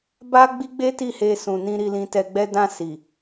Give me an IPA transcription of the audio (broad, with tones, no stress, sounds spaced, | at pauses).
b a˦ ɡ͡b i˦ ɡ͡b e˦ t i˦˨ h e˧ s ũ˨ n ĩ˧ ɾ i˧ l ĩ˧ t ɛ˧ ɡ͡b ɛ˦ d ã˧ s i˨